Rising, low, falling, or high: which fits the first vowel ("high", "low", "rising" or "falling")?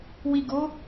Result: low